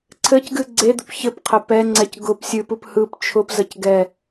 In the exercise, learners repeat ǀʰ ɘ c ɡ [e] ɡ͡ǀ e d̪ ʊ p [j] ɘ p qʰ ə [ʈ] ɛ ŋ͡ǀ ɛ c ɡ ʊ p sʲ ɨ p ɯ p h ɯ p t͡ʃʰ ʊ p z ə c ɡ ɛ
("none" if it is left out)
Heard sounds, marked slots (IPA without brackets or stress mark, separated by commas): ɨ, ç, p